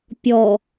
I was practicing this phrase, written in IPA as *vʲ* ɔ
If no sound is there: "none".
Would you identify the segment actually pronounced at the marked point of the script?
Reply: pʲ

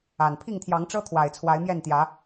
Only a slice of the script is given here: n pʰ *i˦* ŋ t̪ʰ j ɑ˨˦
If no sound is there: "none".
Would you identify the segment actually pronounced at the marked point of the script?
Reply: i˥˨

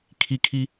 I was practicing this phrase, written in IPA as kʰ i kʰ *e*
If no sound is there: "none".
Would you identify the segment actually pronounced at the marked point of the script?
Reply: i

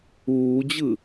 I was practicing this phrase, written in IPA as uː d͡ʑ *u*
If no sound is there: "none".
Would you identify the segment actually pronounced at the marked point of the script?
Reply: ɯ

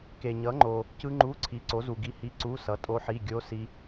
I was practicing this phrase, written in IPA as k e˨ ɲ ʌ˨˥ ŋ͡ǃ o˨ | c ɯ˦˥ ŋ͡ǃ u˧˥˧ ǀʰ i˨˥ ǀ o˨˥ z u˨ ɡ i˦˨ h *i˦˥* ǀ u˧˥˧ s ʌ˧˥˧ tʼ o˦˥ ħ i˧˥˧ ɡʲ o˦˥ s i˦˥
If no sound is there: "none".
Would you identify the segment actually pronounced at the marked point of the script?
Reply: i˦˥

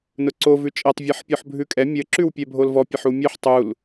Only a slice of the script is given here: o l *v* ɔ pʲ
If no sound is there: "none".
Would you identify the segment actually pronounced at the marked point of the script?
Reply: v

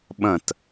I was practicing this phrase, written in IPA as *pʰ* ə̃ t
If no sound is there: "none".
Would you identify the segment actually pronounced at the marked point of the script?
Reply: ɓ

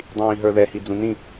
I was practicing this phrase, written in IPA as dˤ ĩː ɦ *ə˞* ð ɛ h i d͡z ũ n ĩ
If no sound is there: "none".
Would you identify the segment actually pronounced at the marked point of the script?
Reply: ə˞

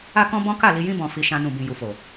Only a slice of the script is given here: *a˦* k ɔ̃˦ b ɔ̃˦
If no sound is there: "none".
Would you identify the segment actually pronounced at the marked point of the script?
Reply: a˦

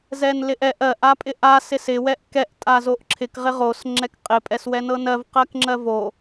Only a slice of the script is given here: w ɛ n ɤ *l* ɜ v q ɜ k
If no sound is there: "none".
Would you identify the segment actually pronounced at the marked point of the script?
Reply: n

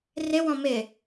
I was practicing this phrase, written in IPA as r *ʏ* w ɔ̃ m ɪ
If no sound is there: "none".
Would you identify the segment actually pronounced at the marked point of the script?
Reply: ɪ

